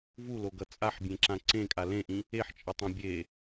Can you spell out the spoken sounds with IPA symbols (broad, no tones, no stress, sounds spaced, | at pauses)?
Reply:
v u l o ɡ ʌ t͡sʼ a ħ bʲ ẽ ǁ ã ǀ ẽ kʼ a l ẽ ʔ ĩ | e ħ t͡ʃʼ ʌ tˤ ã bʲ e